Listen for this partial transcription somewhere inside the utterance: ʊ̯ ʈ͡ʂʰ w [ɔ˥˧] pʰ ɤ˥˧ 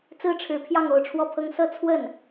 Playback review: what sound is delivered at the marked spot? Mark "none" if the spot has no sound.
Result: ɔ˥˧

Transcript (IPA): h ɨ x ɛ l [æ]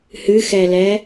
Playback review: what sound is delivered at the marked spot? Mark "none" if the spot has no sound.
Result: ɛ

